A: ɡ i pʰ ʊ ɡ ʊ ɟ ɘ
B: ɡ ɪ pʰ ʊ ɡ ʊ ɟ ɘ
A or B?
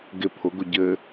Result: B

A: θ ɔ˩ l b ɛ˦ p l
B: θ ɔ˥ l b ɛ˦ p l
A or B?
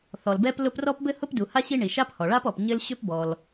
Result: A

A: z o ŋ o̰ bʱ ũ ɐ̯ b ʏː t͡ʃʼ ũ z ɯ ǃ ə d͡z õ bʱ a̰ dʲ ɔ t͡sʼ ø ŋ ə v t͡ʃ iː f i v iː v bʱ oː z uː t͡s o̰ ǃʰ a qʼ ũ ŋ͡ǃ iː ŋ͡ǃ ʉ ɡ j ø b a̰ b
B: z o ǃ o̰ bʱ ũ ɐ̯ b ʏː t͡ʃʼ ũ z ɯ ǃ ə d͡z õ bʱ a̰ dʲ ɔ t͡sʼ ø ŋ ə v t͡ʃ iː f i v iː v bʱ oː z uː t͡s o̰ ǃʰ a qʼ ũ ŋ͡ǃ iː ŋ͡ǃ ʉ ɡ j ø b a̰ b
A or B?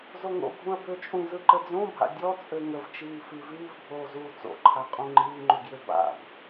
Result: A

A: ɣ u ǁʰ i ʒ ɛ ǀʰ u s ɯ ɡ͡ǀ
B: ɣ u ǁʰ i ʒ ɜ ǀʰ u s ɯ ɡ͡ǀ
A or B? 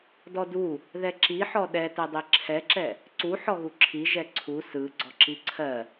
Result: A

